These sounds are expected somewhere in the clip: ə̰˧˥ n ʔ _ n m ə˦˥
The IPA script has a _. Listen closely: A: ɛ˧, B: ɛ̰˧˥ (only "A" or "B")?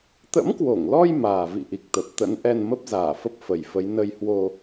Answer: A